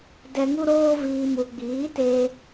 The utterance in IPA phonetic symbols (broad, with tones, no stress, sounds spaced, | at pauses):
d ɛ˧ ŋ u˦ ɾ oː˦ v iː˧ m u˧ ɡ͡b iː˨˦ t eː˧